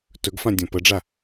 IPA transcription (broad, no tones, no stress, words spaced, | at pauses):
tɵɡfãdʲɔ̃ pəɖ͡ʐa